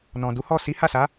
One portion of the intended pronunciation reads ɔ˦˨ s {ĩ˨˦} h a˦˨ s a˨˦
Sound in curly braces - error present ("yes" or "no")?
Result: yes